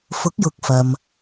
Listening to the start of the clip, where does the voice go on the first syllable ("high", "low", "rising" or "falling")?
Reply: rising